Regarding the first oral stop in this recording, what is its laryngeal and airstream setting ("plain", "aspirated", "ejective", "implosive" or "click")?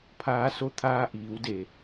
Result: aspirated